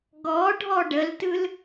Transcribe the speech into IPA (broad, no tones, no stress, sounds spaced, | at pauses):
ɡ ɔ ɖʱ ɔ ɖ ə l t ɯ l